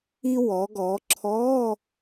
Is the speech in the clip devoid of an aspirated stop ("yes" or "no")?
no